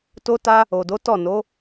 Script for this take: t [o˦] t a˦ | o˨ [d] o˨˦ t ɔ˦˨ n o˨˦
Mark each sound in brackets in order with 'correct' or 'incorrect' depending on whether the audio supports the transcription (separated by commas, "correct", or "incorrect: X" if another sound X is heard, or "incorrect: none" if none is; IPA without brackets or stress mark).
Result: correct, correct